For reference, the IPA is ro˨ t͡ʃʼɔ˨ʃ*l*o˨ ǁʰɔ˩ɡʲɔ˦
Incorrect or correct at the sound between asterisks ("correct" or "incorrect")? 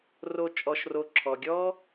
incorrect